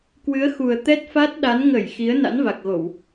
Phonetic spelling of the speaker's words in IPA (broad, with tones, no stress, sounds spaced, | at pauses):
k w ɨ˨˦ ə̯ x u˨˩ ə̯ t̪ ɛ˦˥ t̚ f a˦˥ t̚ ɗ a˨˦ n ŋ ə˧˩ j x i˨˦ ə̯ n a̰˧˥ n v a˨˩ k̚ ɣ o˧˩˨ w